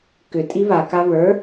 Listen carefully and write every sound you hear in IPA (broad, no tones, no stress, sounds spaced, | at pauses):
k ʏ tʼ i β a k a β ə˞